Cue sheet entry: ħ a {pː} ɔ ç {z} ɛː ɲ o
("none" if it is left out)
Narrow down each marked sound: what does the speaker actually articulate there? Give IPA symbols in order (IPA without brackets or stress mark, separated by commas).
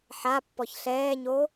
pː, ɬ